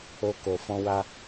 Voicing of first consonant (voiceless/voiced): voiceless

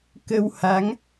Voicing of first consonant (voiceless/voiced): voiceless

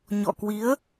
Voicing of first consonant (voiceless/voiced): voiced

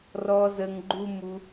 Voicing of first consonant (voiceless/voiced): voiced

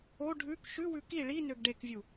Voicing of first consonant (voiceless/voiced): voiced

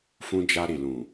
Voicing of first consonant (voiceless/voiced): voiceless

